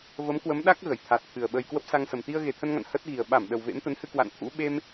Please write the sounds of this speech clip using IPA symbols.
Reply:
və˨˦mkwə˨˦mɗa˦˥k̚ ɣə˧˩jt̪ʰa˨˩t̚t̪ʰɨ˨˩ə̯ɓə˧j kwə˦˥p̚sa˧ŋsə˨˩m t̪i˧ə̯ɣe˨˩t̪ʰə˧nŋa̰˧˨n hə˦˥t̚ɣi˨˩ə̯ ɓa˧˩m ɗə˨˩wvḛ˧˥mt̪ə˨˦nhɨ˧ kwa̰˧˨nt̪ʰṵ˧˥ ɓe˧m

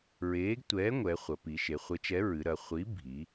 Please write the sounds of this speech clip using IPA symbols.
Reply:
ɹeː˨˥ɡ tʷɛː˨˥ ŋʷɛ˩˧χʷɐ˩˧ pi˩˧ʃe˩˧ χʷe˨˥t͡ʃɛ˨˥ɹɨ˩˧ɾɐ˩˧ χʷi˨˥ bʱi˩˧

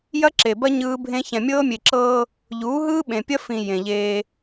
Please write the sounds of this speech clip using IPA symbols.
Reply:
jɐ˦ǁe˨bɐ˦ ɲɯː˦bʱẽ˦ çɛ̃˨mʲɤː˦mʲe˨ǁɤː˦ | ʎuː˨˦ɦɯː˦ɓẽ˨pʲɐ˦ fĩ˨ jẽ˨ʎeː˦

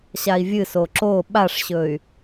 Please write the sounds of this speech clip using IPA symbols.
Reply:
ɕai̯vʲɨso ǁo ɓaʂɕɵy̯

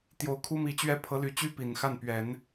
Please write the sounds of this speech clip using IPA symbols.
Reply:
t̪jo˧˥ʊ̯kʰu˥mi˧˥t͡ɕɥɛ˥˩ pʰɤ˧˥ly˧˥t͡ɕy˥ pi˨˩nxa˥˩n pɥɛ˨˩˦n

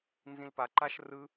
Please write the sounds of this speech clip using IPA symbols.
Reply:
nzĩlpaǃaʃ rɯ

